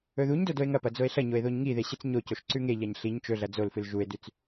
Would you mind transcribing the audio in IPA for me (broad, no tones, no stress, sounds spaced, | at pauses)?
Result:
ɵ ð u ɲ d o d o e̯ ŋ ɐ p ɐ d͡z o e̯ ɬ ɐ ɲ o e̯ ð o ɲ ŋ i ð e ɕ ɨ t͡s ɲ o c o ʃ ǀ ʉ ŋ e ʎ a ɲ ɬ i ɲ t͡ʃ ɵ ɮ ɐ d͡z o l f ɨ l ʒ u e̯ d ʉ t͡s